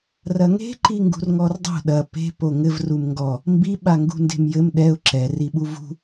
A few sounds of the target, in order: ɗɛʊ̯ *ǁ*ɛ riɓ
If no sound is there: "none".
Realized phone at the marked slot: ǁ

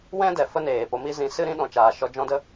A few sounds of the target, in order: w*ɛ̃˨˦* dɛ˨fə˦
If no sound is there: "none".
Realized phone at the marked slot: ɛ̃˦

